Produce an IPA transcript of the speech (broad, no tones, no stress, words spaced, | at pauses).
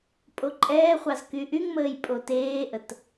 pʼoǃʼɛːχʷɑz kyʔyŋməːj pʼoteːʔət